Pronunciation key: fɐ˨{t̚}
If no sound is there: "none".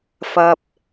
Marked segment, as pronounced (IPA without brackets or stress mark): p̚